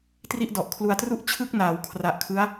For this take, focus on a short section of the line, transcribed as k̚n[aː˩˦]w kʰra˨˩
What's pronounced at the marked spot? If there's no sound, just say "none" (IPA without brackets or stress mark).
aː˩˦